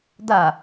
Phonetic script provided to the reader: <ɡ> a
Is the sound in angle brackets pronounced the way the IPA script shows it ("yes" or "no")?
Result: no